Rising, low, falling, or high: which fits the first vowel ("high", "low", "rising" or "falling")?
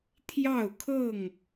falling